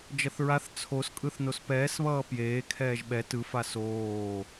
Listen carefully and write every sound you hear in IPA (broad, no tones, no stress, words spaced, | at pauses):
d͡ʒʌθɹaθ t͡sʰos kʼɯθnospɛːs βʌːpjeː kʰɛːʒɓɛ tɯ fasoː